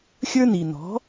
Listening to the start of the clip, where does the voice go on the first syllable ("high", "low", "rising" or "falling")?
high